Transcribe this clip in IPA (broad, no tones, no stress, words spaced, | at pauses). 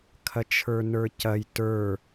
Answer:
kʰɐt͡ʃʰə˞nə˞cɐj tə˞